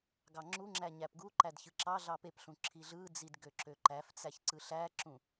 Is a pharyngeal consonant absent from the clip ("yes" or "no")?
yes